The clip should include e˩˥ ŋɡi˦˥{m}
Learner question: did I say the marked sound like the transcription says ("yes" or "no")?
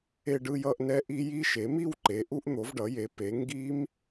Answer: yes